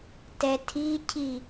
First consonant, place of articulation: alveolar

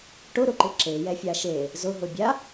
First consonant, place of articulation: retroflex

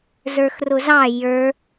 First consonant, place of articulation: alveolar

